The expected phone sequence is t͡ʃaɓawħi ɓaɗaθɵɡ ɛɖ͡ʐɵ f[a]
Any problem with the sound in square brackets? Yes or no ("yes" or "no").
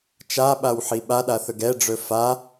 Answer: no